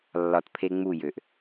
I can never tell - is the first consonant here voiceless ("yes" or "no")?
no